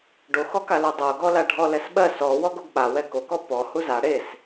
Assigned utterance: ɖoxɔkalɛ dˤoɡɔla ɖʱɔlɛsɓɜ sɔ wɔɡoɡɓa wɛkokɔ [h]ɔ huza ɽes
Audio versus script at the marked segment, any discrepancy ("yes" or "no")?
yes